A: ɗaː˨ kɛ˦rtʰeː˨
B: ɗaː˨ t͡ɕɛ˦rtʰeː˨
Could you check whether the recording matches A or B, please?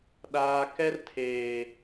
A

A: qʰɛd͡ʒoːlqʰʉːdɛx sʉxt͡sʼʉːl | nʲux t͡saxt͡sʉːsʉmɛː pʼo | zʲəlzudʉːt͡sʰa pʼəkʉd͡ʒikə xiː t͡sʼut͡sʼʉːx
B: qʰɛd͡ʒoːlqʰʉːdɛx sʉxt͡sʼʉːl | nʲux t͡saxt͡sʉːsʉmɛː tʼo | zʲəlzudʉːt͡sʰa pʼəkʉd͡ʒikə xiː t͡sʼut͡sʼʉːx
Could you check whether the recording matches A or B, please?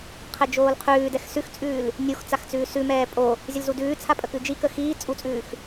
A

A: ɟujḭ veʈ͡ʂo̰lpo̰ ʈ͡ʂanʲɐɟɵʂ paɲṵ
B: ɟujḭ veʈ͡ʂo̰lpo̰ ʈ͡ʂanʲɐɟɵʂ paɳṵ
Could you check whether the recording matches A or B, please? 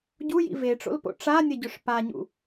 A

